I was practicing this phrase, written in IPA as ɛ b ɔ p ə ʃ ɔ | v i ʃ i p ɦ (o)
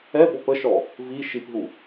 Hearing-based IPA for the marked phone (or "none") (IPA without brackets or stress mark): u